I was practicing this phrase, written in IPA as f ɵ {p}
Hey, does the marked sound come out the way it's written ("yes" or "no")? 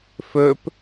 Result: yes